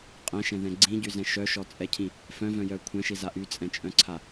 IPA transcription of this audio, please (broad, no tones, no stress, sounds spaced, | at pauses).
qʼ ɛ̃ ʃ ɛ̃ ð ɛ̃ ɡ͡ǀ ĩ ɟ y z ɛ̃ ʃ œ ʃ ɔ t͡sʼ ɛ cʰ ĩ | f œ̃ v œ̃ j œ kʷʰ ɛ̃ ʃ i z a ʔ y t͡sʼ ɛ̃ t͡ʃʼ œ̃ ǀʰ a